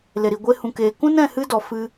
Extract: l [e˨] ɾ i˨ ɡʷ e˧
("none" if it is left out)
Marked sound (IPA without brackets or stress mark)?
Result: e˨